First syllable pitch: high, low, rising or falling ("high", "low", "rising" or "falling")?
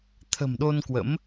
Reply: low